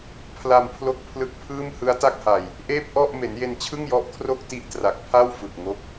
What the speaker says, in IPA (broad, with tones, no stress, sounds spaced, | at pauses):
pʰ l a˧ m pʰ l o˦˥ k̚ pʰ l ɯ˦˥ k̚ pʰ ɯː˥˩ m h ɯ˦˥ a̯ t a˥˩ k̚ h a˧ j | ʔ eː˥˩ p̚ ʔ ɔ˥˩ ʔ m e˩˦ n j e˧ n t͡ɕʰ ɯ˥˩ ŋ j ɔ˦˥ ʔ kʰ r o˥˩ k̚ t i˦˥ ʔ t r a˨˩ k̚ pʰ a˥˩ w f ɯ˨˩ k̚ ŋ o˦˥ k̚